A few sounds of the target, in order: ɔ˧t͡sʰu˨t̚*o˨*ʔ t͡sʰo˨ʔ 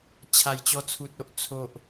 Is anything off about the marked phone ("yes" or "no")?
yes